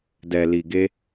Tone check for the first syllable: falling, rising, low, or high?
low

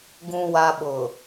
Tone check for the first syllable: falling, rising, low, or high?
low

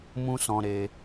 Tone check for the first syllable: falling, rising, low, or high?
high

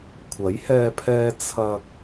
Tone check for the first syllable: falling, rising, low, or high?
rising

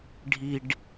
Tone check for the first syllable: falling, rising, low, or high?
low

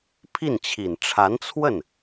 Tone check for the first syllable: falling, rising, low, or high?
falling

